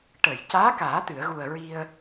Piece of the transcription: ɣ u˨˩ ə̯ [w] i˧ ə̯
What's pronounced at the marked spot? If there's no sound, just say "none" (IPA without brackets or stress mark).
ɹ